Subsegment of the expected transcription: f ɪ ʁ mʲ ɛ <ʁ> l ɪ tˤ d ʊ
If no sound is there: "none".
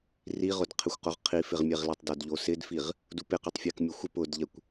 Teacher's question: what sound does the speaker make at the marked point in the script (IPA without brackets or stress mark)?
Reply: ʁ